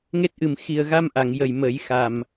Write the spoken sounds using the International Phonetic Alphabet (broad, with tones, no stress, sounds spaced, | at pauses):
ŋ e˦˥ t̚ ʔ ɨ˨˩ m x i˨˩ ə̯ ɣ a˧ m ʔ a˨˩˨ ŋ j ə˨˩ j m ə˨˩˦ j x a˨˩ m